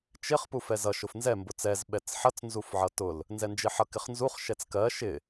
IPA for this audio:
t͡ʃ ɪ χ p u f ɛ z ʌ ʃ ʊ f n z ɛ m b ʊ t͡s ɛ z ɓ ɛ t͡s ħ ʌ t͡s n z u f ʕ ʌ t ʊ l | n z ɛ n d͡ʒ ɪ ħ ʌ k ɪ χ n z u χ ʃ ɛ t͡s k ɜ ʃ ɪ

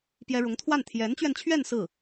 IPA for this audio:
p j ɛ˥ ɻ ʊ˧˥ ŋ t̪ʰ w a˥˩ n t̪ʰ j ɛ˧˥ n t͡ɕ ɥ ɛ˧ n t͡ɕʰ ɥ ɛ˥˧ n s ɹ̩˥˩

